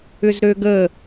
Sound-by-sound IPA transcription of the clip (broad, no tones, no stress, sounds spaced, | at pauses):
ʏ z ɾ ø ɡ ə